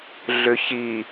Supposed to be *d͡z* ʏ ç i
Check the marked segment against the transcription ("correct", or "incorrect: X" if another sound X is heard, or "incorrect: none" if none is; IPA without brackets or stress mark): incorrect: ɮ